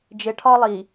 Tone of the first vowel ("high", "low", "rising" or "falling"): low